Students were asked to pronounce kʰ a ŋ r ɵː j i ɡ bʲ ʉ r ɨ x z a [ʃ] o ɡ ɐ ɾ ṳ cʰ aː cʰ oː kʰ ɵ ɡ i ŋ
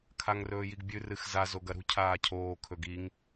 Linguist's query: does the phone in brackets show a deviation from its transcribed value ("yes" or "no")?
yes